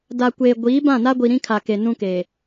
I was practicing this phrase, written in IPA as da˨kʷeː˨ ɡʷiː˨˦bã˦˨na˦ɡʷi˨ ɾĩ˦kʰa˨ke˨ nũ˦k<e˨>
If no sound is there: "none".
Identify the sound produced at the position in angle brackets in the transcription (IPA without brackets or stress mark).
e˨